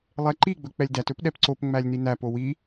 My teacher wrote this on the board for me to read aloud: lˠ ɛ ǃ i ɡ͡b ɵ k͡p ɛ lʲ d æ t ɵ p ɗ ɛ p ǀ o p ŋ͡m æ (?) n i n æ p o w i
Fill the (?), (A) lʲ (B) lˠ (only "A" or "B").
A